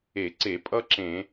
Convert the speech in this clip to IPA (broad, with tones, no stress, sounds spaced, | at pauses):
e˧˩˧ ǀ e˧˩˧ pʼ ʌ˥ ǁ ẽ˧˩˧